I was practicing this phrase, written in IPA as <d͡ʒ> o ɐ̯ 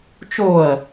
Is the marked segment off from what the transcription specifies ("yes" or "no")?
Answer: yes